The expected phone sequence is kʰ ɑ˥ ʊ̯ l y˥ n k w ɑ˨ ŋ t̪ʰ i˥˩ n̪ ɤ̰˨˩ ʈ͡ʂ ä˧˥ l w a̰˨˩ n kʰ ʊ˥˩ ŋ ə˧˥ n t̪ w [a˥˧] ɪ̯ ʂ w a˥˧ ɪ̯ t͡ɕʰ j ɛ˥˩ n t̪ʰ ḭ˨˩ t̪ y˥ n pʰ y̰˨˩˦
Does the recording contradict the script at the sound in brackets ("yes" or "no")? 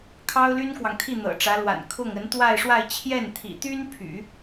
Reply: no